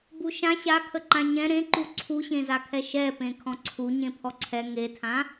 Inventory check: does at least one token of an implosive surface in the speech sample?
no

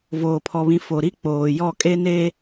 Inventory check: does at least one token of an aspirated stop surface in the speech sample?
yes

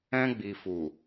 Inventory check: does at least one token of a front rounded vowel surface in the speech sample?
no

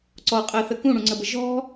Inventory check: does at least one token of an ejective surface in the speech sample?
yes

